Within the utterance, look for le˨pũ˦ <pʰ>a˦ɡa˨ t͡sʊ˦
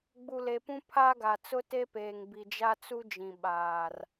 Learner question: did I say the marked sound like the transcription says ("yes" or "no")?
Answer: yes